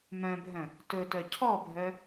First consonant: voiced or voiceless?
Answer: voiced